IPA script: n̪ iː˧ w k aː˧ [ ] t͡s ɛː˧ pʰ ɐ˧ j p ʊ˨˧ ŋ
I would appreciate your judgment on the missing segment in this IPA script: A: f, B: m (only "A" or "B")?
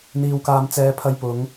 B